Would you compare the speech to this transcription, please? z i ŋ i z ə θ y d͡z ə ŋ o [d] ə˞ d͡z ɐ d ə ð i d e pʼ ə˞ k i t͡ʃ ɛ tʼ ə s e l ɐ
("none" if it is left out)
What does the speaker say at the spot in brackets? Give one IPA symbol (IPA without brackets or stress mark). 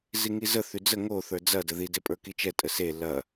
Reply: θ